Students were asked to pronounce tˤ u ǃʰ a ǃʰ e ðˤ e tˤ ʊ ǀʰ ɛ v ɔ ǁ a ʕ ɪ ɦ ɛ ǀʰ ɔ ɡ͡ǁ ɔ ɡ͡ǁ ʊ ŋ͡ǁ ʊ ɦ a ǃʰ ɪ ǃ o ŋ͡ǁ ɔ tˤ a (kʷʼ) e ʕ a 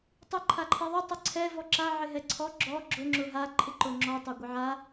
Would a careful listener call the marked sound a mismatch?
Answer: yes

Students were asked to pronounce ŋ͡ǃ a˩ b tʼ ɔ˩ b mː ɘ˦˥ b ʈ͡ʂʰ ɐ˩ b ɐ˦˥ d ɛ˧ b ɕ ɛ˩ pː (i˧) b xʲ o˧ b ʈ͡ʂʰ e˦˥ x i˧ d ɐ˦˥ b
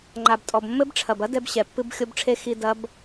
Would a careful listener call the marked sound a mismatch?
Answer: yes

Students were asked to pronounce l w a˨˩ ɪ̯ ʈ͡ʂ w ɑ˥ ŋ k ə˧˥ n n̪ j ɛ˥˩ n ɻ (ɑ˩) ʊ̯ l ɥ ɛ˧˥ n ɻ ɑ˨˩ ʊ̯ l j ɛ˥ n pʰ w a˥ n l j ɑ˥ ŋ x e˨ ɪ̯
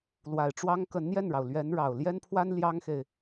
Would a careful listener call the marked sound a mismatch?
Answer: no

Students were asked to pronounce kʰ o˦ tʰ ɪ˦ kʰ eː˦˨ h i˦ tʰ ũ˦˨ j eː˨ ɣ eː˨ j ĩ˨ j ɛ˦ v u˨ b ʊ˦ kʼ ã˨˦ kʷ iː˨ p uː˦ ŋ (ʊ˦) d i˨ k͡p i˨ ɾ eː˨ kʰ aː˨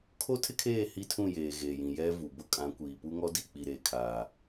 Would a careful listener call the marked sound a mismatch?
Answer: yes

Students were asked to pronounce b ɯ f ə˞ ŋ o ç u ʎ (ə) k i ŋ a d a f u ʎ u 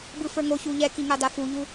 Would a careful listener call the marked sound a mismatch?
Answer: yes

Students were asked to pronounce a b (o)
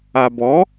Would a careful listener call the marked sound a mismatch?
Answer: yes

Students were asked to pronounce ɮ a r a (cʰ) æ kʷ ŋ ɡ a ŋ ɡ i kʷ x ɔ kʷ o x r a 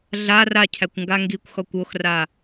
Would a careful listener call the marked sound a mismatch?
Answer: no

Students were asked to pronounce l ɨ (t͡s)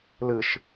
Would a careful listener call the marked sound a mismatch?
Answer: yes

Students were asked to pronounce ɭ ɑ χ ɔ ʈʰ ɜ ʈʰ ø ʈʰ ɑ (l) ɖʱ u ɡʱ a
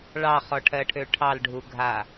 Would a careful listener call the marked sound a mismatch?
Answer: no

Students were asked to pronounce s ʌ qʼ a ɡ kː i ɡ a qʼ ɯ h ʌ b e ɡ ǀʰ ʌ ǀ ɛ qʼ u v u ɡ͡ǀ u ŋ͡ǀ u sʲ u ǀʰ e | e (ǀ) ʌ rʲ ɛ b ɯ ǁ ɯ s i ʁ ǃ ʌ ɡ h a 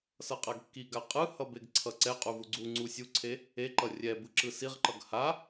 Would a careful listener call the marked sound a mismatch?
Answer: yes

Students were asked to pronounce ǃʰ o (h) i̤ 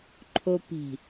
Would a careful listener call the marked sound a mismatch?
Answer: yes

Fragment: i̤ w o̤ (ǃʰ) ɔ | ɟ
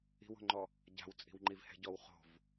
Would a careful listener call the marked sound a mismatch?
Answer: yes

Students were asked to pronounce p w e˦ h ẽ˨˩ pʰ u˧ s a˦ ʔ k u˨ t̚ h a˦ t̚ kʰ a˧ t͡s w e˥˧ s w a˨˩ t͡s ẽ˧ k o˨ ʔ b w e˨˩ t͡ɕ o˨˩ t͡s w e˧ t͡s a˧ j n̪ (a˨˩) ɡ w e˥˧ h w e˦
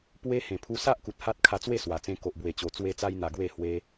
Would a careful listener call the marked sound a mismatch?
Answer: no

